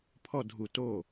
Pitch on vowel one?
falling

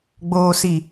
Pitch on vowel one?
low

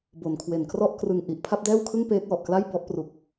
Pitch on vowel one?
low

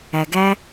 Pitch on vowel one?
low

